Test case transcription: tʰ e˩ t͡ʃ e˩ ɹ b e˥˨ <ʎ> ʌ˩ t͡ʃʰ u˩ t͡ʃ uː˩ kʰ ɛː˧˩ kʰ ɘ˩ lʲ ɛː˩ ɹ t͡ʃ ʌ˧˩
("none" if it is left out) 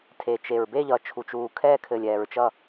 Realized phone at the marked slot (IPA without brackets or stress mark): ʎ